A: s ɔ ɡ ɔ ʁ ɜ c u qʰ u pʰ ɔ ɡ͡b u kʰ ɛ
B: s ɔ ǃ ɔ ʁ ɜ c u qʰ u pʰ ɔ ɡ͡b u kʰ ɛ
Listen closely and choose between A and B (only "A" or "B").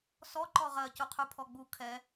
B